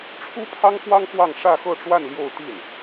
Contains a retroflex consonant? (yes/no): yes